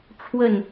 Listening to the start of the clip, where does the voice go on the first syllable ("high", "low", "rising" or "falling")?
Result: falling